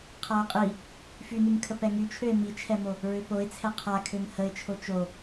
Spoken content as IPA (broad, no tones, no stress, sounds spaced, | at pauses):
qʰ a ʊ̯ qʼ i | f y n y m kʰ ə p ɛ ŋ y t͡ʃʰ ø ɪ̯ m i t͡ʃʰ ɛ m o | ɹ ø p o ɪ̯ t͡sʰ ɛ qʰ a kʰ ø m h ə ɪ̯ t͡ʃʰ o t͡ʃ o